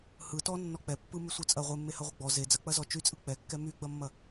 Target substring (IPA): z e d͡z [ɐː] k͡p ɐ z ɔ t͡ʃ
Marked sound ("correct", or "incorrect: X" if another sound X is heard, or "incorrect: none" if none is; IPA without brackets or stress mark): incorrect: ɐ